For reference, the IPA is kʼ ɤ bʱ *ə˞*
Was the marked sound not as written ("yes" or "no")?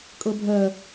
yes